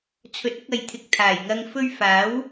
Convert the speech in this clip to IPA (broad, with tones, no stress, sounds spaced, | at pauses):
t͡sʰ ɵ˨˥ t̚ ʊ˧ k̚ ɐ˨ j t̪ʰ ɪ˨ k̚ t̪ʰ aː˨˩ j ŋ ɐ˧ ŋ f ɵ˧ ɥ f aː˨˥ w